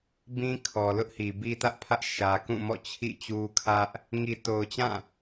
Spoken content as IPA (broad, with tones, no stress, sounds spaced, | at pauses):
b ĩ˦ kʰ ɔ˨ l ʊ˦ ʔ h i˨ b i˦ t ä˦ ʔ pʰ ä˦ ʔ ʃ ä˦ k ũ˦˨ m ɔ̰˦˨ t͡ɕʰ ḭ˦˨ t͡ɕ u˦ kʰ ä˦ ʔ | ŋ i˨ t o˨ ʊ̯ t͡ɕ ã˦˨